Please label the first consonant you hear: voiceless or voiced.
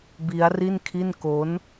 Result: voiced